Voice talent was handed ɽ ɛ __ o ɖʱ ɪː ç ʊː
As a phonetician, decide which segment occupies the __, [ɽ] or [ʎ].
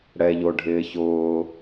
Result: ʎ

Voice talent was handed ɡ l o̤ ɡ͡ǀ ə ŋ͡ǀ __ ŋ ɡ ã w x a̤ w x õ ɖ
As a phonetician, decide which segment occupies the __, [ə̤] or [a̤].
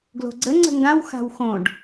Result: ə̤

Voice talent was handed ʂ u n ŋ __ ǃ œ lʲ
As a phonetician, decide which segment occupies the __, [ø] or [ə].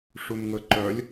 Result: ə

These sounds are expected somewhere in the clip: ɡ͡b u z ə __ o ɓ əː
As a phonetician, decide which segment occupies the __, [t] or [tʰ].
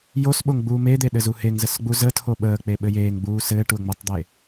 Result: tʰ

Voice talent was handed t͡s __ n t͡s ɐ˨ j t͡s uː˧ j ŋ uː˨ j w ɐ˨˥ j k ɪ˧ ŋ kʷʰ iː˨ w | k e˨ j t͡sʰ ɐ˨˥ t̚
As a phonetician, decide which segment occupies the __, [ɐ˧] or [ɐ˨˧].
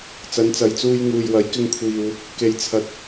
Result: ɐ˨˧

